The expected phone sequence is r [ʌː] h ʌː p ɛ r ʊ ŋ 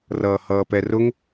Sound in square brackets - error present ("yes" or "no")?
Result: no